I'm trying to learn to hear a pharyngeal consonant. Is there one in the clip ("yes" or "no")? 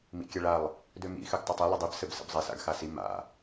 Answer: no